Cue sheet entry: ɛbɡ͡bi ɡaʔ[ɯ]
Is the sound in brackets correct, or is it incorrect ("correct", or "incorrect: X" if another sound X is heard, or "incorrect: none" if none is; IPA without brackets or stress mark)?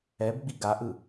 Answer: correct